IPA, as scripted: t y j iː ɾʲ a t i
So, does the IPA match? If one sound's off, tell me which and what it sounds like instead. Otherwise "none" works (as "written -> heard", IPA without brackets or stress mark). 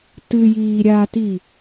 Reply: y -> ɨ